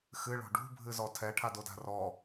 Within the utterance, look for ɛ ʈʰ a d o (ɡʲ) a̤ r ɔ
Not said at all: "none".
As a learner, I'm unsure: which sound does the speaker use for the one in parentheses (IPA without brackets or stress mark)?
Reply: d